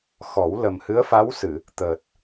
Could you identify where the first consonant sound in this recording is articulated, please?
velar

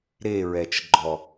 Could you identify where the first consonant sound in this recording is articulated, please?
alveolar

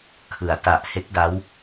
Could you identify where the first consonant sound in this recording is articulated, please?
velar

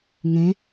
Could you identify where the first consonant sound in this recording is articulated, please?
velar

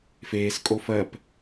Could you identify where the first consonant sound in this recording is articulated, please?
labial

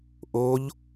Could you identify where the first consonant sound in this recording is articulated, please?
glottal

